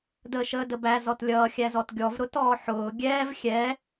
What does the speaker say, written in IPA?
dəːʃəːdəbæ zɔtlʲʌːxʲæzɔt ɡʲɔvɾʊ tɔːħʊː ɡʲɛːv xʲɛː

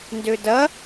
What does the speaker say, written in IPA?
ndødɐ

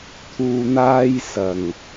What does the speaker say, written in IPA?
t̪ʰuː˨n̪aː˧j sɐ˨˩ŋ

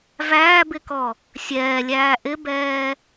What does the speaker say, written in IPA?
væːbɪkɔ | sʲɛːlʲæː ʔɪbɛː

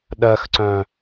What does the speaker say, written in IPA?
ɗɜxǀœ̃

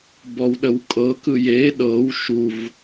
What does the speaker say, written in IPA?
bɔwɗəwkʼɤkɯ je ɗɤw ʃuv

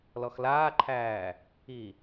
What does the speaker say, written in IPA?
lɔxlaːǃʰæː | i

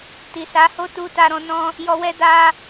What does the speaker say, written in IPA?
ti˨sa˨˦ho˦ tu˧ta˧ɾɔ̃˧ nɔ̃˧ | jɔ˧wɛ˦ da˧

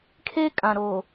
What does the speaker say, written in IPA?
kʰe˦ kʼã˨ɾoː˨

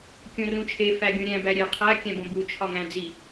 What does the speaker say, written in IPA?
kʲõrũt͡ʃʰe fæɡʲõɾʲæ̃ bæɾʲe qʰæ kʲæ̃bõbu t͡ʃʰɒŋæ̃d͡zi

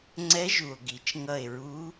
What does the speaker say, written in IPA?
ŋ͡ǀɛ˧˥ʒu˩o̯ɡi˩t͡ʃ ŋʌ˧˩e̯ɹu˧˥

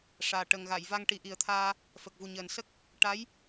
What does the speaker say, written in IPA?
ʂaː˨˩ ʈə˨˩ŋɣa˨˩˨jva˧ŋ ʈi˨˩˦ʔi˨˩ə̯t̪ʰaː˧ | fə˨˩k̚vu˨˩ɲəː˨˩nsə˦˥k̚ | ʈa˧˥j

